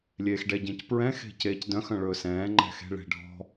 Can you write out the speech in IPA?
lʲeːxɖɛɟẽcpɹɛ̃ xe̤ceːcdœ̃x œ̃ɭɵːsɛ̃ː ŋ͡ǃɛ̤xe̤ ɭe̤ ɖʱɔ̤

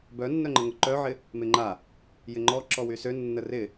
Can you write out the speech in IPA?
bœnːœŋ͡ǃəŋʊ ǃœʕɪ | mɪŋ͡ǃa | jɪŋ͡ǃɔ ǁɔwysø nːərɪ

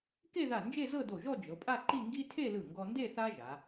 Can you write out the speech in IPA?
ke˥˧ða˧˩ nd͡ʒe˥˧zɤ˥˧do˧˩ʒɔ˥˧ d͡ʒɤ˩˧pʼa˥˧ ǃi˥˧ŋɡi˥ tʰe˥˧lɯ˧˩ŋɡɔ˧nde˥˧ θa˥ʒa˩˧

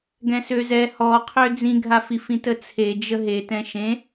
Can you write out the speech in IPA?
ɡɛ̃søzɛ hɔqʰø d͡zĩɡʱafi fĩtət͡sʰe d͡ʒəɦetɛ̃ ʃẽ

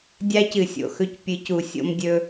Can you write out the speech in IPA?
dʲa˦cɨ˨sʲo̰˨xɵ˦c pʲɨ˨˦cu˨ sʲo̰˦mdʲɵ˦

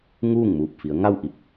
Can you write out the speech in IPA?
ŋuː˥˨ŋmuː˧˩p̚fi˩˧ə̯ŋa˥˨w ʔi˥˨p̚

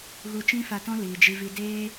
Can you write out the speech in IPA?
ɣu˧t͡ʃĩ˦fa˧tɔ̃˦ liː˨ d͡ʒi˧vi˧ deː˦

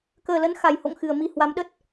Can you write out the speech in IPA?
kəː˨˩lə˨˦n xa˨˩jho̰˧˨ŋxɨ˨˩ə̯ mi˨˩ hwa˨˦mɗə˦˥t̚

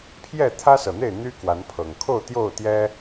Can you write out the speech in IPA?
pʰjɛ˥˨t̪ʰä˦sɤ˨˩n̪e˥˨ɪ̯ n̪y˦ kwa˨˦npʰɤ˨˩ŋ kʰo˥˨ʊ̯t̪jo˥˨ʊ̯t̪jɛ˦

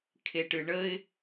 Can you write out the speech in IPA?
kʰeʈɨɳəɪ̯

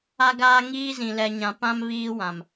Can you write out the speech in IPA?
a˦ɡaː˦ŋiː˦zĩ˨ lɛ˨ɲã˨ pã˦m βiː˦wã˨m

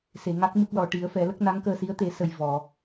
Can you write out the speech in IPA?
se˨˩˨ŋa˦˥k̚ mɨ˦˥k̚lɔ˨˩ ʈi˨˩˦ə̯fɛ˨˩˦lə˦˥k̚ na˧˥ŋkəː˧si˧˥ə̯ t̪e˨˩˦sə˨˩j vɔ˨˩˨

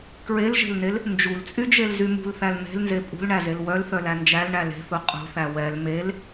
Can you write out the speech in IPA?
kɹelʒe̤lnel | nd͡ʒult͡sʼyd͡ʒelzy mṳlθæl n̪e̤lnze pʼṳlɳæzel wœlθœlæ nd͡ʒælɳæ le̤θu qʼṳθæ wɛl mel

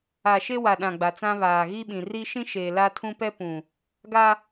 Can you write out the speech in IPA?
a˨ ʃe˦wa˨ɗã˨ ɡ͡ba˨t͡sã˦βaː˨ ɣi˦ɓĩ˨ ri˦ʃĩ˦ʃeː˨ la˦tʰũ˦ pɛ˦pũ˨ | ɡa˦

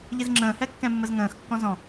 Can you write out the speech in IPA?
ʎizŋ͡ǁə̃ː hɛkːɛ̃mːəzŋə̃ːx kːɔ̃zɔ̃

